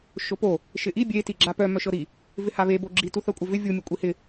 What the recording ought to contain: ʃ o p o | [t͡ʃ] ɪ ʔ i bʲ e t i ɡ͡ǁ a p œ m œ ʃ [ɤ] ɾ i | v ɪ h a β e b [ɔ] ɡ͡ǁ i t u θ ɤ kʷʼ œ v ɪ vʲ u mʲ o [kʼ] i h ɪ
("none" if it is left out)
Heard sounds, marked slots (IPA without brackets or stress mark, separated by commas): ʃ, ɤ, o, kʷʼ